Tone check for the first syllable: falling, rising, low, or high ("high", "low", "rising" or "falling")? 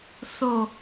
low